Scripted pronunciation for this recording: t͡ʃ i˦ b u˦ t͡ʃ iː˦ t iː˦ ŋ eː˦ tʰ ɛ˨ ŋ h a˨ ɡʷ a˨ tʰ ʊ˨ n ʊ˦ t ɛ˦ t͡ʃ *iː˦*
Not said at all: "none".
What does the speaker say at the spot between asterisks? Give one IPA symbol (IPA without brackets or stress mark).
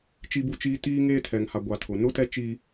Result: iː˦